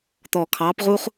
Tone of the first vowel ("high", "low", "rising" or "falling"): low